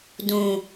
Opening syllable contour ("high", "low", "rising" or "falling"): low